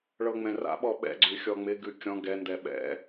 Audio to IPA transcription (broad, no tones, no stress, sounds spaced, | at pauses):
ɭ ɤ ŋ͡m ɛ̃ r a̰ ɓ ɔ ɓ ɛ̰ ɡ͡ǀ ʉ xʲ ɔ ŋ͡m ɪ ɡ ʉ kʲ ɔ̃ ɡ ɛ n d ɛ ɓ ɛ̰